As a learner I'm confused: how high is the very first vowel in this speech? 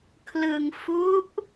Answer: high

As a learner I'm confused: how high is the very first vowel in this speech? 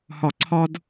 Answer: low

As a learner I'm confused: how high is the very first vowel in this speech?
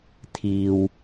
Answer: high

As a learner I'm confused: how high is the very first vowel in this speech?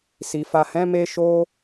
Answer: high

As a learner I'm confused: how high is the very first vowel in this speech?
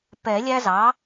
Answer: mid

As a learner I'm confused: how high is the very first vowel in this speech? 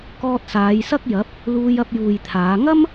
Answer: mid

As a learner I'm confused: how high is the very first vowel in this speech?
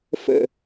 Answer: mid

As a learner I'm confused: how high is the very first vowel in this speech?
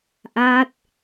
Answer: low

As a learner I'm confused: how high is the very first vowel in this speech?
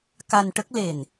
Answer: low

